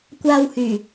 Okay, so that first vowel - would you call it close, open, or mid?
open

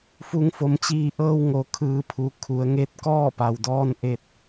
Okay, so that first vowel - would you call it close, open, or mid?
close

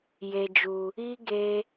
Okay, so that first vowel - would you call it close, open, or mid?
mid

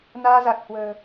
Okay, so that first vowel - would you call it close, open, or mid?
open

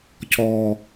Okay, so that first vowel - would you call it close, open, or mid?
mid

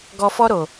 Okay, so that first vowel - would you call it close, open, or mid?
mid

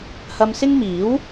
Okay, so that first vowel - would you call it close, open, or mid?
open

